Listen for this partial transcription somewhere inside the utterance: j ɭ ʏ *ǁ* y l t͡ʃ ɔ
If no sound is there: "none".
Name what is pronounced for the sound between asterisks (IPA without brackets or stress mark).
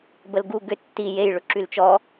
ǁ